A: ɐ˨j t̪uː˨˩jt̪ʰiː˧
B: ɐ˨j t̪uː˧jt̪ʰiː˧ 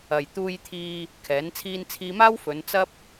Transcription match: B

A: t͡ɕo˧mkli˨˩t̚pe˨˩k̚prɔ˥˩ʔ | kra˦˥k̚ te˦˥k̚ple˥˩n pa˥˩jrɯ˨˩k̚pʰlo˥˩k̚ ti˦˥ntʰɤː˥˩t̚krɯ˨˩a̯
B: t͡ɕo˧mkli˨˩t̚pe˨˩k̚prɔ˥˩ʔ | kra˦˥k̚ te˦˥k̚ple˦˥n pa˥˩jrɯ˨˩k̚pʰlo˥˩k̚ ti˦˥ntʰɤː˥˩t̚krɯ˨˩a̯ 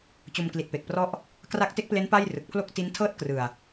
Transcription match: B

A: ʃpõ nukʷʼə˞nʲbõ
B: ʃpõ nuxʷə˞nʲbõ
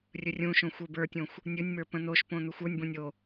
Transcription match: B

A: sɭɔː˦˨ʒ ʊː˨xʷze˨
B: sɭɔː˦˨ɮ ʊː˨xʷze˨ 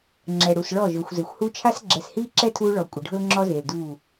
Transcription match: A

